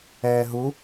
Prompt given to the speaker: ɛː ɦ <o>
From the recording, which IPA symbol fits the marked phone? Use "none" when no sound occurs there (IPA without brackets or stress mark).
u